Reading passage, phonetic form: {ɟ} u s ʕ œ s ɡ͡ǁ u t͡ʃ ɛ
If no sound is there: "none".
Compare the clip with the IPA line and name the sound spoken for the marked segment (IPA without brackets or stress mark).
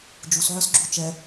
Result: d͡ʒ